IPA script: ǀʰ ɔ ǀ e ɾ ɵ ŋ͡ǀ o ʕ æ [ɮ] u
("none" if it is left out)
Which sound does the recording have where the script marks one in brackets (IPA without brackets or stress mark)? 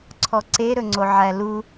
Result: l